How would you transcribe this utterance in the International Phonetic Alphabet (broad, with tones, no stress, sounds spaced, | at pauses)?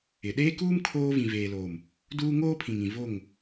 ɪ˨ ɗ eː˦ k uː˦ m kʰ oː˦ v ĩ˨ v eː˨ l oː˨ m | d uː˦ ŋ oː˦ pʰ ĩ˨ ŋ ĩ˨ v o˦˨ ŋ